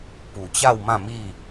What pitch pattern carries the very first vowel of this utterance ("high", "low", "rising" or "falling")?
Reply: low